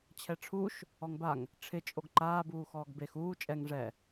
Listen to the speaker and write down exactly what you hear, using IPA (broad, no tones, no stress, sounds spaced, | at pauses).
t͡ɕʰ ɛ ʈ͡ʂʰ u ʃ | ɔ ŋ b a ŋ | ʈ͡ʂʰ ɪ t͡ʃʼ o ɡ ǃ aː b uː x ɔː ɡ b e x uː t͡ʃʼ ɛ ŋ ʐ ɛ